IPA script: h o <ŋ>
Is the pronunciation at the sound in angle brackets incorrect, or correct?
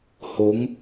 correct